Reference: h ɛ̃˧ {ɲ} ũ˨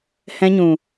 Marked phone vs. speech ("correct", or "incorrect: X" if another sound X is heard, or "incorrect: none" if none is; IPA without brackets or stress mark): correct